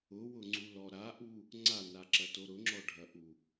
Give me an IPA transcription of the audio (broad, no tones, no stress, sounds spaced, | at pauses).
ʊ w ʊ ŋ͡ǀ u l ɔ ɾ a ʔ u | ŋ͡ǀ a n a ǁ ɐ t o ɾ ʊ ŋ͡ǁ ɔ ɖʱ ɐ ʔ u